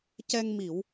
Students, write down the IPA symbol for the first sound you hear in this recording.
c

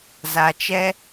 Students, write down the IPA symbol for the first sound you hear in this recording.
z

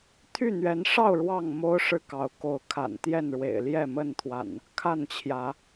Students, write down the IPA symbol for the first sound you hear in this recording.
t̪ʰ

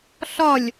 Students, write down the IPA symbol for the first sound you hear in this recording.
ɬ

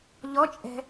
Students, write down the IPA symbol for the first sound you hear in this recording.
ʎ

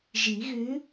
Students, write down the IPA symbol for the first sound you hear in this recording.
ʒ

